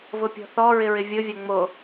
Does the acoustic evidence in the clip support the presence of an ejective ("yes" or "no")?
no